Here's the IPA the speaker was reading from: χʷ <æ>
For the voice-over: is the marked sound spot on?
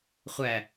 yes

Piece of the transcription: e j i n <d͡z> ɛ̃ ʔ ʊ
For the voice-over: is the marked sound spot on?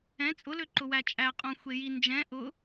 no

